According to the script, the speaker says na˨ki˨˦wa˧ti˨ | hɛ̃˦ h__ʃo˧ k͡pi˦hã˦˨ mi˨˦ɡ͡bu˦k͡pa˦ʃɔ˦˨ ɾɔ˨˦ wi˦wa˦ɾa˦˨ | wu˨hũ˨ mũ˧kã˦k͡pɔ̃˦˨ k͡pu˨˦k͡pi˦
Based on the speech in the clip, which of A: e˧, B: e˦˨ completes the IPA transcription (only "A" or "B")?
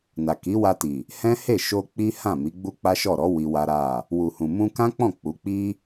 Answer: B